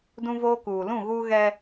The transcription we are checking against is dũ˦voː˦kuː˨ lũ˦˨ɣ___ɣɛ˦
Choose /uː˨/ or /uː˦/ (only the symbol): uː˦